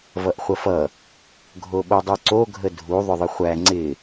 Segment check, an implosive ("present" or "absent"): present